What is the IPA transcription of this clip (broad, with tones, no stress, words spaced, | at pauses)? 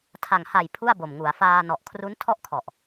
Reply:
tʰa˨˩ŋha˨˩j pʰu˥˩a̯bo˨˩mŋu˩˦a̯ faː˧nɔ˨˩ʔ kʰru˦˥ntʰɔ˥˩ʔkʰɔ˨˩ʔ